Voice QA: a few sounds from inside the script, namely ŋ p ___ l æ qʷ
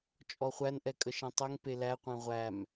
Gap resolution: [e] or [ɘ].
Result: e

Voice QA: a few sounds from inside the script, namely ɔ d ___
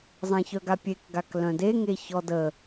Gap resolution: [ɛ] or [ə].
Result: ə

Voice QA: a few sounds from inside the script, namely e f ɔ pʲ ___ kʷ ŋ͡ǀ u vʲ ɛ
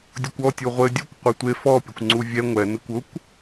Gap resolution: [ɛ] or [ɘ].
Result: ɘ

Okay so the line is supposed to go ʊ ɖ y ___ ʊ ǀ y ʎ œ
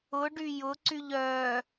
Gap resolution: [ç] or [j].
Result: j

